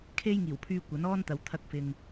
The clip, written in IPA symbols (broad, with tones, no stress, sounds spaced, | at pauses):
kʰ e˥ j ŋ iː˨˩ w pʰ yː˧ kʷ ɐ˨˥ n ɔː˥ n t̪ ɐ˨ w t̪ʰ ɐ˧ k̚ f ɪ˨ ŋ